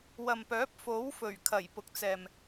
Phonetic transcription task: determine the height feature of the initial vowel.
low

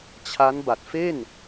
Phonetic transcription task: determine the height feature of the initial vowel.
low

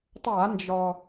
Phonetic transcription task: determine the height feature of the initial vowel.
low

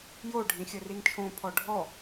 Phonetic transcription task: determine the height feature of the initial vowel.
mid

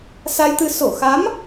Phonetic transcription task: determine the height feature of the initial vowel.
low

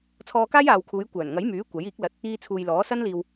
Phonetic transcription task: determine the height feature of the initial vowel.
mid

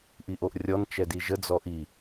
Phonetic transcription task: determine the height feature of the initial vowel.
high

